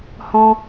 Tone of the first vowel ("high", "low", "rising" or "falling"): high